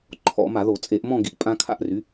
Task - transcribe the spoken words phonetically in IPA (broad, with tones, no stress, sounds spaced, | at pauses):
ǃʰ ɔ̰˧˩˧ m a˧˩˧ ð o˧˩˧ t͡sʼ e˧˩˧ ʔ m ɔ̃˥˧ ɡ i˩˥ ʔ pʼ ã˦˥ kʰ a̰˥˧ ʔ r y˩˥